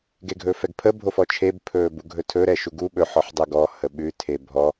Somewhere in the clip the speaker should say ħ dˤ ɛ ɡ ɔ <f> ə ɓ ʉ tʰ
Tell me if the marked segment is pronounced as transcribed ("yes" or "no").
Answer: no